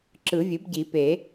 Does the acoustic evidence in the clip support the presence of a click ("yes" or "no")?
yes